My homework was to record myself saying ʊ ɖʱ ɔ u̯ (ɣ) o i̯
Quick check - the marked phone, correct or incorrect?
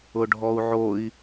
incorrect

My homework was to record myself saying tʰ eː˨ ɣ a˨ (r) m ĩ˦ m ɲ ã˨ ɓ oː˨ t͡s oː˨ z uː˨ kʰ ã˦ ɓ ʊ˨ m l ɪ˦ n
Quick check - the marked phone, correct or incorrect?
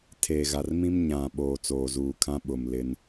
correct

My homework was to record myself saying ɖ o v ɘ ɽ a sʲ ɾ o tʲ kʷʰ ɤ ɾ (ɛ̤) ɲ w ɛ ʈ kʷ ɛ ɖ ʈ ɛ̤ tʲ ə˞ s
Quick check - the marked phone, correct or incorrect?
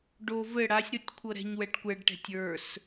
correct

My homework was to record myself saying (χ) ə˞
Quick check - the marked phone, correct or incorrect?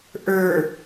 incorrect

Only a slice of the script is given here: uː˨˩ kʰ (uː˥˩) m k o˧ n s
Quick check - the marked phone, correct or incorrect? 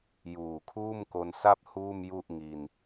correct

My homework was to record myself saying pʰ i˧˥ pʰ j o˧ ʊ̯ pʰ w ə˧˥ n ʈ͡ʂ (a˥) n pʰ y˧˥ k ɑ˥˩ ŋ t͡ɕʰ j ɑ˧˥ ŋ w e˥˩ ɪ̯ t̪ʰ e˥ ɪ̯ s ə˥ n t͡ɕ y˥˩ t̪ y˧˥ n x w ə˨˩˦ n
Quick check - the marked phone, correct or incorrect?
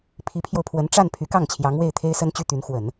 incorrect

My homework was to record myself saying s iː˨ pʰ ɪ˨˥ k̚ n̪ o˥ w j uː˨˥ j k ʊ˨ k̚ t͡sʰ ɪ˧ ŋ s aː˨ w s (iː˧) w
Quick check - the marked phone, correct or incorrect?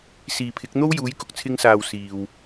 incorrect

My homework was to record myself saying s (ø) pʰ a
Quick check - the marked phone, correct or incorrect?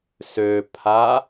correct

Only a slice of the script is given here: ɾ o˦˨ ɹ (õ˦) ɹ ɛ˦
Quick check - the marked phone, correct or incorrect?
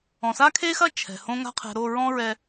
incorrect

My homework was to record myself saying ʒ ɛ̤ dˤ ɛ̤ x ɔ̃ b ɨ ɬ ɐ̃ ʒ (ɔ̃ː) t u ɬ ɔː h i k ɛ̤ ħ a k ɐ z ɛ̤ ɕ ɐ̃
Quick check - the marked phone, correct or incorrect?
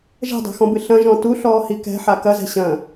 incorrect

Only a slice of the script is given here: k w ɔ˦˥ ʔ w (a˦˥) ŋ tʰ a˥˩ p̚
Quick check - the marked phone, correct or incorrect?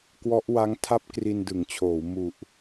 correct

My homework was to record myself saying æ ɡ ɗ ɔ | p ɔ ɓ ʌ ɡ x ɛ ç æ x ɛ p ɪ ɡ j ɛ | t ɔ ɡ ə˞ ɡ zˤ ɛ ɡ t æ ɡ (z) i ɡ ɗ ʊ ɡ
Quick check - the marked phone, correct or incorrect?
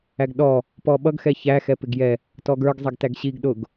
incorrect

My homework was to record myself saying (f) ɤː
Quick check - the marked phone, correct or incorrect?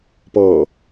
incorrect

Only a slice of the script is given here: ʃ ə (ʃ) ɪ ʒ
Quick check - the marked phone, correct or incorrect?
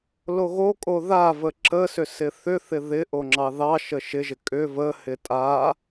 correct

